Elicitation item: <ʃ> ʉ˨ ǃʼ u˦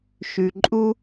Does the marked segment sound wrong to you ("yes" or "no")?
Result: no